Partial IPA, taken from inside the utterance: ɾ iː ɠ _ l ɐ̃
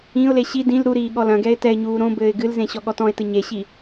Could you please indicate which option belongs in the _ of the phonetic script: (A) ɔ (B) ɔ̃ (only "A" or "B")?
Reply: A